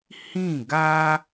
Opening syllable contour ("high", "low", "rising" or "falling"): falling